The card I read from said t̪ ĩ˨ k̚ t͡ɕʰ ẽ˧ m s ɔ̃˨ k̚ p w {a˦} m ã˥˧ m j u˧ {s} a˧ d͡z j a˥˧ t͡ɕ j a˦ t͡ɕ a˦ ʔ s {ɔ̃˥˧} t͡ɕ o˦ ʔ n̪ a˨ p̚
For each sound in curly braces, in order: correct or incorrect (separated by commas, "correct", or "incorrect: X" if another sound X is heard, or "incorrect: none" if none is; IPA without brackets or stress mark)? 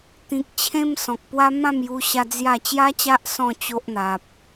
correct, incorrect: ɕ, correct